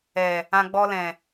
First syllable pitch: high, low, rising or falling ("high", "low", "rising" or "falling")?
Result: low